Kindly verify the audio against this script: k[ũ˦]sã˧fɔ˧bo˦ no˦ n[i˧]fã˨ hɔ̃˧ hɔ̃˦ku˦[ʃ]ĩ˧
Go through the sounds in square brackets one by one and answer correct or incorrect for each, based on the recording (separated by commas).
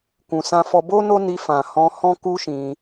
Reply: incorrect, correct, correct